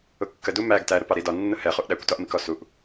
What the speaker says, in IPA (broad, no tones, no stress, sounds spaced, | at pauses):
ʊ kː ə d u m æ ɡ t æ ɾ ʊ p ɑ ɾ i d ɒ nː ʊ h ɛ χ u ʔ ɗ æ kʷ t ɒ ʔ m i k ɔ s u ʔ